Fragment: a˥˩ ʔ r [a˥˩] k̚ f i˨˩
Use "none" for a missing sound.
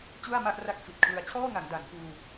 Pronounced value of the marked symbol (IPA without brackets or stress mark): a˥˩